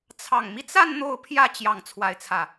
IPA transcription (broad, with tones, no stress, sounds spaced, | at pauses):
t͡sʰ ɑ˨˩ ŋ m i˦ t͡s a˥˧ n n̪ o˥˧ ʊ̯ pʰ j ä˥˧ t͡ɕ j ɑ˥˧ ŋ t͡sʰ w a˥˧ ɪ̯ t͡sʰ ä˥˩